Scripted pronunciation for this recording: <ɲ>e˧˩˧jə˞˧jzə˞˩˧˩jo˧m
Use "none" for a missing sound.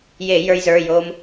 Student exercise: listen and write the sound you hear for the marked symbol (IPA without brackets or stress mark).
j